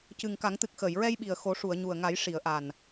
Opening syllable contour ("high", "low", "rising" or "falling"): low